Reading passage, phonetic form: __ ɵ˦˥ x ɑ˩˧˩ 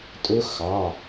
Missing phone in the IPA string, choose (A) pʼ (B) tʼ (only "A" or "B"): B